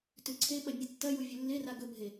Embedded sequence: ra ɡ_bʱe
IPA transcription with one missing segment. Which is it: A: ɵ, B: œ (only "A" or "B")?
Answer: A